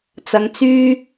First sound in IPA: t͡s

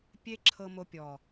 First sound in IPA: pʲ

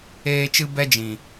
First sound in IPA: eː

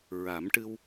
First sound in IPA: ɹ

